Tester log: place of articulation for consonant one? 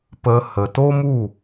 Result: labial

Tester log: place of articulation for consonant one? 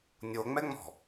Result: alveolar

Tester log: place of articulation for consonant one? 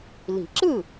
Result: alveolar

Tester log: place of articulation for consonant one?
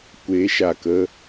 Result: velar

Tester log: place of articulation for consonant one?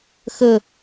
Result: velar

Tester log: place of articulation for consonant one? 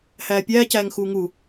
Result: glottal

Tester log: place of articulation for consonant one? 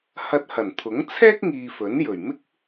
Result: glottal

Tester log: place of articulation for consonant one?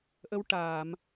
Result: glottal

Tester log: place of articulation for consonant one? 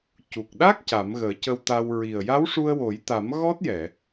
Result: palatal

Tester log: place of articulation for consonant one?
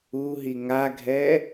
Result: glottal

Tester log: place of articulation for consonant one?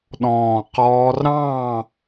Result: alveolar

